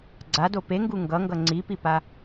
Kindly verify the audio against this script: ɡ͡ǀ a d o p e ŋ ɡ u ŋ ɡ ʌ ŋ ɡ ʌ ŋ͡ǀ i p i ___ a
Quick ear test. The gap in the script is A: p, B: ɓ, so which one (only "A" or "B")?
A